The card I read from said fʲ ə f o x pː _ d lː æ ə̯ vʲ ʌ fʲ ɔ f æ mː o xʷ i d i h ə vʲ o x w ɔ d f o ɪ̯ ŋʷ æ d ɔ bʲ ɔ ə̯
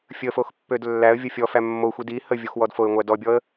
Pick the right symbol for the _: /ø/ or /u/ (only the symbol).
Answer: ø